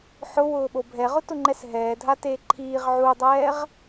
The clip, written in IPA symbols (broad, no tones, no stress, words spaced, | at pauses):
ħʊwʊːɓo bʱɛʁʊtʊŋ͡ǃɛs ɦɛːdʱateː ǃʰiːʁ ʕudˤɛːʁ